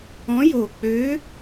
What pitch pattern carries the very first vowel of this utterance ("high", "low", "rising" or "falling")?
rising